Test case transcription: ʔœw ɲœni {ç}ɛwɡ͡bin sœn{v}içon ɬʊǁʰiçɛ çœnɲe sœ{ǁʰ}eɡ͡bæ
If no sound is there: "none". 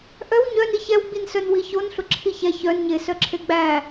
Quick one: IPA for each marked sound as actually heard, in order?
ç, w, ǁʰ

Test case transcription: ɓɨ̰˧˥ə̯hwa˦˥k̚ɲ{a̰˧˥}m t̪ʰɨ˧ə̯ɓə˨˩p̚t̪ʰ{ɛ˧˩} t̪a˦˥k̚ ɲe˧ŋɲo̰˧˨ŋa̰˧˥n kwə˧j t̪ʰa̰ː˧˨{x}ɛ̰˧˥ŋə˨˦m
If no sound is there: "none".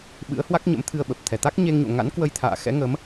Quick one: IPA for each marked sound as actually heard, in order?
ə̰˧˥, ɛ˧˩, x

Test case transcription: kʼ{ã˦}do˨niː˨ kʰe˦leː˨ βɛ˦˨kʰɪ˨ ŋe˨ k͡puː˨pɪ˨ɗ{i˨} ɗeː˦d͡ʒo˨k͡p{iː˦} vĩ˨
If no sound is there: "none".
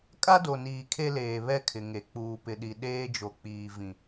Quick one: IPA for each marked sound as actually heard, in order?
a˦, i˨, iː˨

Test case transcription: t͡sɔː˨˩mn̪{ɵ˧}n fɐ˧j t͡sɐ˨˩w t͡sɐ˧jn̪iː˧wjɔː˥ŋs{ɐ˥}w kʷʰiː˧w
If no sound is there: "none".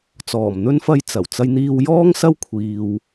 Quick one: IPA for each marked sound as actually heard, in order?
ɵ˥, ɐ˥

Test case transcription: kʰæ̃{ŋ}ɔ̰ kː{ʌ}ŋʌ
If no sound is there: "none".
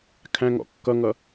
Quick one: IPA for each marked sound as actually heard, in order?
ŋ, ʌ

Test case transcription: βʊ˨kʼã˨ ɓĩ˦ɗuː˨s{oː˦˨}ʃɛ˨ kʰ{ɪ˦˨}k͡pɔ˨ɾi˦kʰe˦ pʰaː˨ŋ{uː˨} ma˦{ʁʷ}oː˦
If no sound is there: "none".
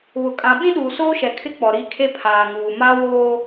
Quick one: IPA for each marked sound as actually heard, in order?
oː˦, ɪ˦, uː˨, w

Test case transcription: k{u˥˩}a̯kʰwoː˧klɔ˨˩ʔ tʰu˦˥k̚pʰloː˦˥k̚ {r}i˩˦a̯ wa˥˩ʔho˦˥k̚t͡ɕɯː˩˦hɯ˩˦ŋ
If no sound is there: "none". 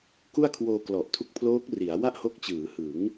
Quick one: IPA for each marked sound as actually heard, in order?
u˥˩, r

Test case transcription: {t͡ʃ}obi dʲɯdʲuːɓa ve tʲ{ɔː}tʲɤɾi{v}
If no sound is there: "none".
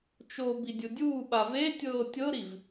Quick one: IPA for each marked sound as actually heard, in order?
t͡ʃ, ɤː, v

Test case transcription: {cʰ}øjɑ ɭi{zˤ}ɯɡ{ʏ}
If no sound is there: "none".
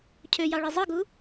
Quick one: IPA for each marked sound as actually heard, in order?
cʰ, zˤ, u

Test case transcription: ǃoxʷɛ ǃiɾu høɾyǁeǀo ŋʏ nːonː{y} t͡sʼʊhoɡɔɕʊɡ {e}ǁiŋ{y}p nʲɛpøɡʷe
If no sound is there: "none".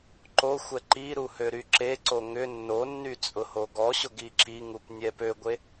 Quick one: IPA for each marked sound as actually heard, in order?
y, i, u

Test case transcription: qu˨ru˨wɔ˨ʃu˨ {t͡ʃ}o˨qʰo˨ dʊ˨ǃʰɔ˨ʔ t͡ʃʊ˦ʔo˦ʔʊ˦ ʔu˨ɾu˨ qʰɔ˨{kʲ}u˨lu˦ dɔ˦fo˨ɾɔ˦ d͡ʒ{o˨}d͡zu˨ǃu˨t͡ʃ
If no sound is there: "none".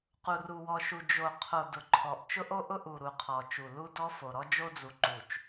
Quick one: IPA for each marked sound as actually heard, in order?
d͡ʒ, t͡ʃ, o˦

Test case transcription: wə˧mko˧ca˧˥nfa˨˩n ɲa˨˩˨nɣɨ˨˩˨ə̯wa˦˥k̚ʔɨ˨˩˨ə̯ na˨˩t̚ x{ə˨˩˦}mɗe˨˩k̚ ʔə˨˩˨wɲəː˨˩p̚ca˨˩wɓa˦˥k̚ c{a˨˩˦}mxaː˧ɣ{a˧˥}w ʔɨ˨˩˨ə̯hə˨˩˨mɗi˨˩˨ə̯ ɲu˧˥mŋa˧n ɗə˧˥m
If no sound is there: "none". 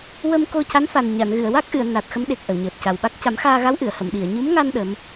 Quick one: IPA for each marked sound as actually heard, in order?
ə˧˥, a˨˩˦, a˧˥

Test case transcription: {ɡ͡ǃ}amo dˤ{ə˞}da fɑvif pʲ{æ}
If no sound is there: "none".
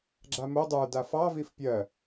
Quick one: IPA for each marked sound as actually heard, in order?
ɡ͡ǁ, ə˞, ɜ

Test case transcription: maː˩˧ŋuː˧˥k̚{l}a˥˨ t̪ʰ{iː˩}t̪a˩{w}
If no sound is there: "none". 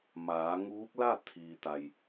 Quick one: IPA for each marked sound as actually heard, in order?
l, iː˩, j

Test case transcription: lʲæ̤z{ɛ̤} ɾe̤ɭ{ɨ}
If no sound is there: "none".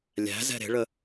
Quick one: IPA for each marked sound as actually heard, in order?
ɛ̤, ə

